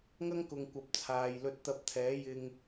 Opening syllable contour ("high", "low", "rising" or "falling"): high